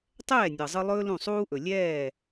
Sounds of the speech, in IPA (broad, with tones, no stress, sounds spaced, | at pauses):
tˤ ɛː˥˩ nʲ ɤ˩ zˤ ɯ˧ lˠ ɵː˥ l ũ˥˩ sˤ uː˥ ʔ ɵ˩ lʲ ɛː˥˩